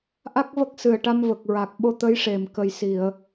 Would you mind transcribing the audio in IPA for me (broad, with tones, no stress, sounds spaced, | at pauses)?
ʔ a˦˥ k̚ v ə˦˥ k̚ s ɨ˨˩ ə̯ ʈ a˧ m v ə˨˩ k̚ ɹ a˨˩ k̚ ɓ o˧ t̪ ə˧˥ j ʂ e˨˩ m k ə˨˩ j s i˨˩˨ ə̯